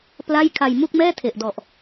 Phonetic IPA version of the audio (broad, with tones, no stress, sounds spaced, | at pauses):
p l a˥˩ j kʰ a˧ j m u˥˩ k̚ m ɛː˥˩ tʰ e˨˩ ʔ d ɔ˨˩ ʔ